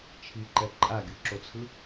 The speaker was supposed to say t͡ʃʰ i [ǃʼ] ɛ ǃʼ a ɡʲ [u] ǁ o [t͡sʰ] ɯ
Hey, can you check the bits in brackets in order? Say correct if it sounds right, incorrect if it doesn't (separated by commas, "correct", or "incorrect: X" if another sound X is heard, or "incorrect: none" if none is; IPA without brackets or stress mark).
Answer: incorrect: ǃ, correct, correct